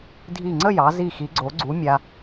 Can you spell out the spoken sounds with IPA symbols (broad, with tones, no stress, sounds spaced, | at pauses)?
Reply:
dʱ i˧˩ ŋ͡ǀ ə˥˧ j ɑ˩˧ z i˧˩ x i˩˧ ɡ͡ǀ o˩˧ ɡ͡ǀ u˩˧ mʲ a˧